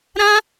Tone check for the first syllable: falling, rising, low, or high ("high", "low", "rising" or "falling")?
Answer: high